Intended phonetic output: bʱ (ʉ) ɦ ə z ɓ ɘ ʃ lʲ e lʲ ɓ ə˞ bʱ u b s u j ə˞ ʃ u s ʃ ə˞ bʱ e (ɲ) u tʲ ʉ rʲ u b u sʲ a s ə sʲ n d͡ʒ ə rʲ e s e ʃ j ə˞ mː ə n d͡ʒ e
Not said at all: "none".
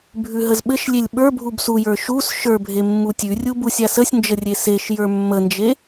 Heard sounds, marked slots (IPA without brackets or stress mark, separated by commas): ʉ, mː